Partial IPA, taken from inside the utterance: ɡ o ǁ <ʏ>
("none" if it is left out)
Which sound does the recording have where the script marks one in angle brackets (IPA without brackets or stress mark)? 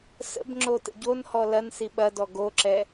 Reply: ɛ